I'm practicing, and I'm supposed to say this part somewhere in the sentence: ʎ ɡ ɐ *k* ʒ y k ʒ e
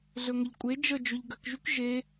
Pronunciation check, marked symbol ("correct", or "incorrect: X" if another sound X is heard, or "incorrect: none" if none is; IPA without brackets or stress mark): correct